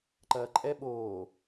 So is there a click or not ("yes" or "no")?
yes